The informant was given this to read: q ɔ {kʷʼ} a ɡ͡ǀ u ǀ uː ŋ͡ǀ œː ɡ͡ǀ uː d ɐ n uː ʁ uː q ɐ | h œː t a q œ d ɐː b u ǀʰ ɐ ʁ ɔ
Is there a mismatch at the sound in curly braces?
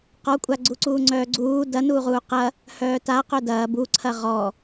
no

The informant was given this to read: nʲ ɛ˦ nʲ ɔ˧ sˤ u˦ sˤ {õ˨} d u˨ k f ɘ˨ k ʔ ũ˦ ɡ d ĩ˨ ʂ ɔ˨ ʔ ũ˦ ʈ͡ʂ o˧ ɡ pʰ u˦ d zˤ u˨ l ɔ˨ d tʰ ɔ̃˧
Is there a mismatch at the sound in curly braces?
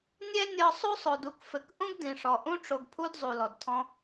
yes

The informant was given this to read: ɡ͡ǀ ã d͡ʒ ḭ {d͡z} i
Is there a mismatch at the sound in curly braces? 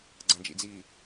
no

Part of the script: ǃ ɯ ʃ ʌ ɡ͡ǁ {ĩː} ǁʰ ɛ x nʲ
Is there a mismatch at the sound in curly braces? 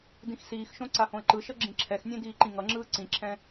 yes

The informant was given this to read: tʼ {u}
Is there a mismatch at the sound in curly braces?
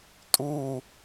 no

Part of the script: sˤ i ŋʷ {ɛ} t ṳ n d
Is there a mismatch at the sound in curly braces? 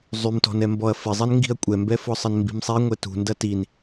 no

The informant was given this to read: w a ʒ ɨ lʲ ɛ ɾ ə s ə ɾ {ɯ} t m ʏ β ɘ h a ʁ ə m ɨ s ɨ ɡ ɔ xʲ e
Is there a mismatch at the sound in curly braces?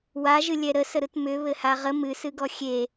no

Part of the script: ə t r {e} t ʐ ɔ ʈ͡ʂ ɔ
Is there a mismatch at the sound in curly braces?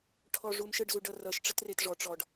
no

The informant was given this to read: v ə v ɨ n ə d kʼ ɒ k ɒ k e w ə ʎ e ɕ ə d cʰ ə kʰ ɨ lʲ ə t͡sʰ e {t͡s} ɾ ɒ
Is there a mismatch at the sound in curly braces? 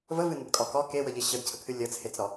no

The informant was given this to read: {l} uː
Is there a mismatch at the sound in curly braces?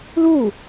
no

